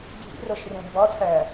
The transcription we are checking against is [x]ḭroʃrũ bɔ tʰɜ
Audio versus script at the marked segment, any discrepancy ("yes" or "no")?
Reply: yes